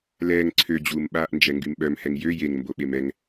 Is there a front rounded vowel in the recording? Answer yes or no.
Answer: yes